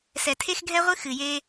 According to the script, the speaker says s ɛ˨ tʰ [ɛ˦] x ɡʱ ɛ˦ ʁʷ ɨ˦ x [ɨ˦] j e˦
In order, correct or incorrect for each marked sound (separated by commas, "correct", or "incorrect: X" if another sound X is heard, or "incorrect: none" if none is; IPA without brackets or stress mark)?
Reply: incorrect: e˦, incorrect: ɨ˨